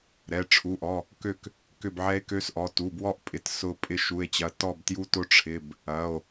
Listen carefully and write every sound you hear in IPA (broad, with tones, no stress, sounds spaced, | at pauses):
ɾ ɛ˩˧˩ ʈ͡ʂʰ u˩˧˩ ʔ ɔ˩˧˩ | k ø˦˨ k | k ʏ˦˨ b ʕ ɛ˧˥ e̯ k ø˧˥ s ʔ ɔ˩˧˩ t u˩˧˩ b w ɔ˦˨ ʔ pʼ ɪ˩˧˩ t s ʊ˦˨ pʼ ɪ˦˨ ʃ u˩˧˩ e̯ t͡ɕ ɐ˩˧˩ t ɔ˦˨ b t j u˧˥ t ʊ˧˥ ʈ͡ʂʰ ɪ˩˧˩ b | ɐ˩˧˩ o̯